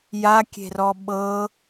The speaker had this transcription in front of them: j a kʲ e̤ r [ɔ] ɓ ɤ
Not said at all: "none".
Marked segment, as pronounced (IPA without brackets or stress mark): ɔ